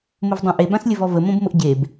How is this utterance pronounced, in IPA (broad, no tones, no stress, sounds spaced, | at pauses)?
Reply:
m ʊ v dˤ õ ʔ e b ã s lʲ ə v ɔ v ə m õ b m ʊ ʔ ɟ e b